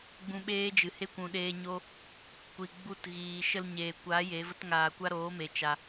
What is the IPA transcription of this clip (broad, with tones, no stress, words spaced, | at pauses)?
ɡ͡bũ˧ɓeː˦d͡ʒɨ˨he˦ kʷũ˨ɗeː˧ɲo˦ | kʷi˨ɡ͡bu˧t ɣiː˨ʃə˧l ɲeː˨kʷa˨˦ je˨˦və˦t ŋaː˧kʷa˦ ɾoː˨˦me˨ t͡ʃa˧